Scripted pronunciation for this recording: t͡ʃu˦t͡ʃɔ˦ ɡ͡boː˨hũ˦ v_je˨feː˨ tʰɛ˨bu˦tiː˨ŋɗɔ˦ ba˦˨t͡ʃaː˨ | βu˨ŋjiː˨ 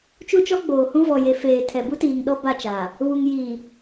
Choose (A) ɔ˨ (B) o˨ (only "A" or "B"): A